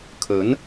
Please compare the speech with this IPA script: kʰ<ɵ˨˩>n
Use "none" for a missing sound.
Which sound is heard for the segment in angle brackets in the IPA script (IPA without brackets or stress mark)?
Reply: ɵ˨˥